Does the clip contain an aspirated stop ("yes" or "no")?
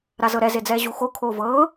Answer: yes